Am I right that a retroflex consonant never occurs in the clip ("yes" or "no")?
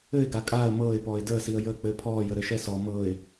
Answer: yes